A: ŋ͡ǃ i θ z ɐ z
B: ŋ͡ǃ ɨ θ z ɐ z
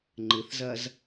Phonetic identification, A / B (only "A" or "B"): B